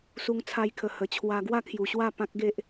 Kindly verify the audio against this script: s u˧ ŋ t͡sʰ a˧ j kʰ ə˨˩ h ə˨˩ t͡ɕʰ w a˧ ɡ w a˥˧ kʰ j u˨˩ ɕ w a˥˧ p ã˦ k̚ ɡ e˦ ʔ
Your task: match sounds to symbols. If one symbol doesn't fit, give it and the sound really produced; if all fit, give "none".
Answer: none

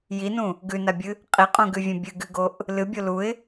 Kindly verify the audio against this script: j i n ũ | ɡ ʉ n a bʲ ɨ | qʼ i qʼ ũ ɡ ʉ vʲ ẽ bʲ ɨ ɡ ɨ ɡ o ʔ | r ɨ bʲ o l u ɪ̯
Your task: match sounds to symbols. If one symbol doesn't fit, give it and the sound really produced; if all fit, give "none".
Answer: r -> l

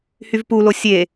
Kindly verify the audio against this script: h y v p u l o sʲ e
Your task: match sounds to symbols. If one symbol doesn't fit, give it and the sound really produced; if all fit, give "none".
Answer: none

